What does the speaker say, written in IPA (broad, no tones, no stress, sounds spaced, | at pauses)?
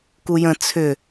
k u j ə̃ t͡sʰ ʏ